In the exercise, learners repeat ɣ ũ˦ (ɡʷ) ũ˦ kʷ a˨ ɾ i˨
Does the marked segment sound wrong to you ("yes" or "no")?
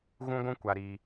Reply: no